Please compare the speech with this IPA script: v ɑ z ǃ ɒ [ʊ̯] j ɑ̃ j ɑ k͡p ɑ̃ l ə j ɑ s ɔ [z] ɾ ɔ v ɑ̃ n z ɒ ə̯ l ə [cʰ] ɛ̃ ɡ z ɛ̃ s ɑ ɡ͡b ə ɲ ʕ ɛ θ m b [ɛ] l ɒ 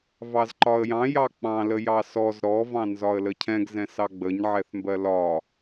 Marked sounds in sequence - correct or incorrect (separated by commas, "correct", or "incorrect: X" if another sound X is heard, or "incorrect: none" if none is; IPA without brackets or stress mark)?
incorrect: ə̯, correct, correct, incorrect: ɜ